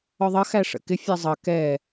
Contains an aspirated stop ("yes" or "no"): no